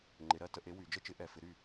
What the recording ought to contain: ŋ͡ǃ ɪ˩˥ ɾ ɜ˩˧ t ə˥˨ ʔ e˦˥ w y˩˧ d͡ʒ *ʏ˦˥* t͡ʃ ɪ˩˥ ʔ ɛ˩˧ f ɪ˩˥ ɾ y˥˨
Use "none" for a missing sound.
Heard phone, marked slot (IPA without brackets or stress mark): ə˦˥